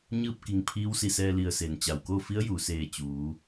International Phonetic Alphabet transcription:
ɲ ɯː˥˨ p̚ k i˧˩ ŋ pʰ iː˧˥ w s i˧˩ s ɛː˧ l i˧˩ ə̯ s e˩ n t͡ɕ a˩ w k o˥˨ f i˧˥ ə̯ j uː˩ s eː˧˩ t͡ɕ uː˩˧

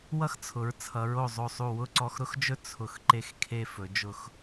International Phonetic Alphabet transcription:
w ʌ˥ x t͡sʰ ʊ˩˧ ɹ t͡sʰ ʌ˩˧ ɹ o˧˩ zˤ o˧˩ sˤ u˧˩ w ʊ˥˧ ǀ ɔ˧ x ɾ ʊ˥ x d͡ʒ ɵ˥ t͡sʰ ʊ˧˩ x ǃ e˥˧ x kʰ e˥˧ f ɵ˩˧ d͡ʒ ʊ˧˩ x

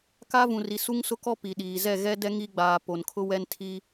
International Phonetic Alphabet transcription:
k a˦ v ũ˨ r i˨ s u˦ ŋ s ʊ˦ k ɔ˦ p i˨ ɗ iː˨ z ɛ˦˨ ɣ ɛ˦ d ɛ˦ ŋ i˦ ɡ͡b aː˨ p o˨ n kʰ ʊ˦ w ɛ˦ n tʰ i˦

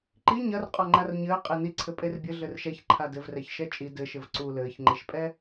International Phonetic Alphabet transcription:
ǃ i ɲ ɐ r qʼ ɔ ŋ͡ǃ a r ɲ ɘː qʼ e n i ǀʰ ɘ pʼ e r bʲ ɘ ɮ ɘ r ʃ ɛ ç ǃʰ a d ɘ v r ɛ ç ʃ ɛ t͡ʃʼ i d ɘ ʃ ɘ v ǀ u l ɘː ç ŋ͡ǃ e ʃ pʼ ɛ

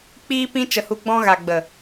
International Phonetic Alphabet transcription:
k͡p iː˦ p ĩ˦ t͡ʃ ə˧ h u˧ ɡ͡b ɔ̃˦ ɣ a˨ ɡ͡b ə˨

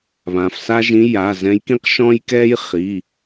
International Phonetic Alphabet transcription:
β ã˩ f s a˥ ʒ ĩ˧˥ j a˩˧˩ z ɛ̃˧˥ j k ĩ˥ q ʃ ɔ̃˥ j k ɛ˥ j χ i˩˧˩

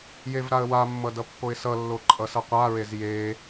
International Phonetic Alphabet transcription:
j e v ɾ a ə̯ w a mː ʌ d ʌ pː o ɪ̯ s ʌ lː o ǃʼ ʌ s ʌ qʷ a ɹ e z j e

